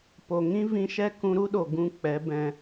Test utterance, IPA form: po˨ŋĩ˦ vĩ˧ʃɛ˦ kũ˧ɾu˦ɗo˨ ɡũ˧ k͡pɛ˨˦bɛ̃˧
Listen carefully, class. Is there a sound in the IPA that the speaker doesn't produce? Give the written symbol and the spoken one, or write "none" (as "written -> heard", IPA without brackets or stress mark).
none